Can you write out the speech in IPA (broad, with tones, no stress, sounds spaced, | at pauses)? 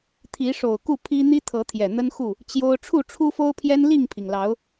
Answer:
t̪ʰ i˨˦ ʂ o˨˩ ʊ̯ k u˥˨ pʰ i˦ n̪ i˦ t̪ʰ ɤ˨˦ t̪ʰ j ɛ˨˩ n̪ ə˦ n x u˥˨ | t͡ɕ j o˦ ʊ̯ ʈ͡ʂʰ u˥˨ ʈ͡ʂʰ u˦ f o˦ ʊ̯ pʰ j ɛ˦ n l i˥˨ ŋ pʰ i˩ ŋ l ɑ˨˦ ʊ̯